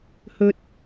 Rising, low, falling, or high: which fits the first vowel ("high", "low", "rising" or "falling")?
high